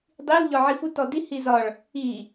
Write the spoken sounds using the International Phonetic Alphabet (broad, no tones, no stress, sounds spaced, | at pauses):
dˤ i l ʎ ɒ ʕ i f u t ɔ d i h i z ɒ ɭ | i